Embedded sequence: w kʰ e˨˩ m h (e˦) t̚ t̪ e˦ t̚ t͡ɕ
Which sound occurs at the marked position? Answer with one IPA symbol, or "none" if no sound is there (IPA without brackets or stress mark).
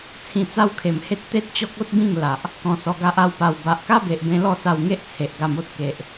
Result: e˦